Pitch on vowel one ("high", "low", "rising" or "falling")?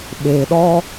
low